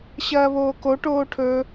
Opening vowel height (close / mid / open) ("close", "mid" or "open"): open